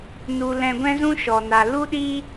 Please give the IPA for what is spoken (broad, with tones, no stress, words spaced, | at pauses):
nu˧lɛ̃˧ɡʷɛ̃˦zũ˦ ʃɔ˧na˧ lu˦ɗi˦